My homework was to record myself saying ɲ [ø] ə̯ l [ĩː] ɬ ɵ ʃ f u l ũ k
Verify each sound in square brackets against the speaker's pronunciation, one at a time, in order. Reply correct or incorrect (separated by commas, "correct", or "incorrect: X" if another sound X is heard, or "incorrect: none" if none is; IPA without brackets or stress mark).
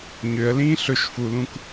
correct, correct